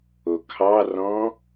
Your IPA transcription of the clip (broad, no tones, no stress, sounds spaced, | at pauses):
o kʰ ɑ r ɔ̃